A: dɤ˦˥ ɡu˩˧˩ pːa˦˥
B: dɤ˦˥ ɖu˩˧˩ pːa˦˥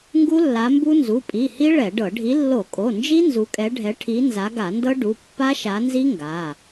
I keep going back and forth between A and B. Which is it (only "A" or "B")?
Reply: B